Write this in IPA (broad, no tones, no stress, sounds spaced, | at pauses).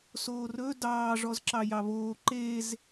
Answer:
s oː r ɵ d ɑː ʐ ɔ z ǁ ɑ j ɑ β oː ǃ e z